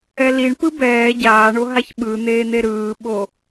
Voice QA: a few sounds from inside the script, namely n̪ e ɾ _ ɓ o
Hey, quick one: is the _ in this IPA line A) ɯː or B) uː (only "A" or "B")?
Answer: A